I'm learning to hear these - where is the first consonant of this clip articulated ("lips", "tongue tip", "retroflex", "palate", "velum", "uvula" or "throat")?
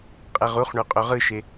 uvula